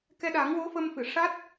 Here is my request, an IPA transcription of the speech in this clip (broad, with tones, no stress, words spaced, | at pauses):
kɛ˧ɗa˨˩˦ŋwo˧˥ fə˧mfɨ˨˩˨ ʂa˦˥t̚